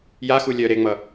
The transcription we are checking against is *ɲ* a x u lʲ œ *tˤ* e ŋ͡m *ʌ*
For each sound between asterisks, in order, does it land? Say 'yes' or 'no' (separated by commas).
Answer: no, no, yes